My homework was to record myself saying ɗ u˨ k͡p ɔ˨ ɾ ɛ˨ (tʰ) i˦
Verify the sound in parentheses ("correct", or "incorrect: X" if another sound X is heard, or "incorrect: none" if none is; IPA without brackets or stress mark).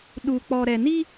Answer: incorrect: n